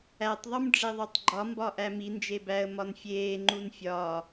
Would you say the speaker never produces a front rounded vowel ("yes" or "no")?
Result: yes